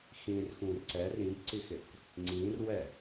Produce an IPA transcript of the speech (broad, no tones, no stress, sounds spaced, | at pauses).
x ĩ r x ũ r ǀ ɛ r ĩ b ǀ i x ɪ k | ŋ͡ǀ ĩ r w ɛ